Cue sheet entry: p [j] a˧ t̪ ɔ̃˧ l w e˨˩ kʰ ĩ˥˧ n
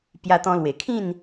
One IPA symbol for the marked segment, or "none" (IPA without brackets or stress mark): j